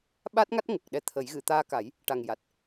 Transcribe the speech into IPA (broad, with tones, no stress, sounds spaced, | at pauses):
ɓ a˦˥ t̚ ŋ a˦˥ t̚ ŋ ə˨˩ k̚ ɗ ɛ˧˥ t̪ʰ ə˨˩˦ j ɣ ɨ˨˩˨ t̪ aː˧ k a˨˩˦ j | ʈ a˨˩ ŋ j a˨˩ t̚